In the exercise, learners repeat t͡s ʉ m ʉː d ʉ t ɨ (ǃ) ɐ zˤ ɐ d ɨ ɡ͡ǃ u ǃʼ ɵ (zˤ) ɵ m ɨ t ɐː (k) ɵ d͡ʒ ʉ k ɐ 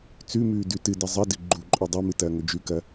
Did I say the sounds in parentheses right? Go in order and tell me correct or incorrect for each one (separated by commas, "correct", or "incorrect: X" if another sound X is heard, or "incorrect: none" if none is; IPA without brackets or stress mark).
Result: incorrect: d, incorrect: dˤ, incorrect: ŋ